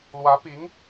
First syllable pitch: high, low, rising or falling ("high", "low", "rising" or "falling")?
rising